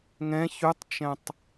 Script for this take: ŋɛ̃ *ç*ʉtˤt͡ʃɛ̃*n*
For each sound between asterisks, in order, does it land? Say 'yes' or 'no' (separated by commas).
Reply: yes, no